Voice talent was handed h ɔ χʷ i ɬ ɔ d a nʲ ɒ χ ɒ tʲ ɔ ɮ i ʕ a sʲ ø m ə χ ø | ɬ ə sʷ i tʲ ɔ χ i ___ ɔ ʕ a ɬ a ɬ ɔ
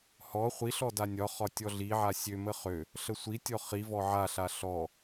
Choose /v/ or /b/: v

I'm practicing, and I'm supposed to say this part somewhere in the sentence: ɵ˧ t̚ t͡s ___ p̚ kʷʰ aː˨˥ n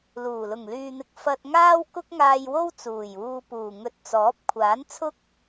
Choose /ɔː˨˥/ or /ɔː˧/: ɔː˨˥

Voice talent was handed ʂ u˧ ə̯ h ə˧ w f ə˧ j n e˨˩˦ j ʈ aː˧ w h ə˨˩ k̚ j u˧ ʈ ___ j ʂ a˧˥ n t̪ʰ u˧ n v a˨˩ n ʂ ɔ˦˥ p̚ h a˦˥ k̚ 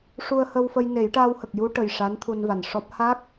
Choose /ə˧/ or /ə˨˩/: ə˨˩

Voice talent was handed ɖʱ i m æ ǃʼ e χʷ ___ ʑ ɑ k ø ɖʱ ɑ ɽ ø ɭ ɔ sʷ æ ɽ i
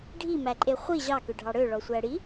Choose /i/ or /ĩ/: i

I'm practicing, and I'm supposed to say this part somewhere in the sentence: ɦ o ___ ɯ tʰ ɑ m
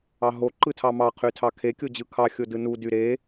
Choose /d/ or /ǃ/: ǃ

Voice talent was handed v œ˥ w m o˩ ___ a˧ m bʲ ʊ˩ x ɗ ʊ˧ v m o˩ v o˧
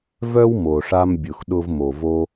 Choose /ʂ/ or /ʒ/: ʂ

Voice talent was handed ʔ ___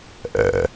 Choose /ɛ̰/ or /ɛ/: ɛ̰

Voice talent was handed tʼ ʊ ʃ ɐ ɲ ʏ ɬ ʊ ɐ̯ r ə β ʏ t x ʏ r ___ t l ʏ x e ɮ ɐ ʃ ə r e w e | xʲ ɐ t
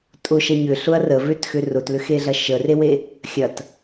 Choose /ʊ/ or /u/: ʊ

